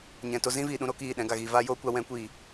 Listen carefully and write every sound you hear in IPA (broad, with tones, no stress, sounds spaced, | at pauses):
ɲ ɛ̃˨ t o˧ z ĩ˦ v iː˨ ɗ ũ˧ ɾ o˧ k iː˦˨ ɗ ɛ̃˨˦ ɡ a˨ ɣ iː˨ v aː˦ j oː˦ kʷ a˧ w ɛ̃˨˦ kʷ iː˨